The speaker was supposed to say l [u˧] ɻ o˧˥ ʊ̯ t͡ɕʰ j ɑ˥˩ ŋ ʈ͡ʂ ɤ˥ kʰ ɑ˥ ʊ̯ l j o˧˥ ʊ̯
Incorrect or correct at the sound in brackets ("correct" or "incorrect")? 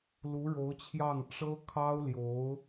incorrect